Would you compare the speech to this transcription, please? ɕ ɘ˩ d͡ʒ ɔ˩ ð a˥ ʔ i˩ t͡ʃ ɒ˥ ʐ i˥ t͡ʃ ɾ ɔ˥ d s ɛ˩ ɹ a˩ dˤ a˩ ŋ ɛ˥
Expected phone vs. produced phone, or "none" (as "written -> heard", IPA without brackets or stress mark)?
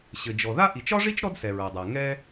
none